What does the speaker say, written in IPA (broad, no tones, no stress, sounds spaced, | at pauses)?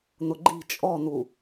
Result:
n̪ ʊ ɡ͡ǃ i̤ t͡ʃʼ ɔ n̪ u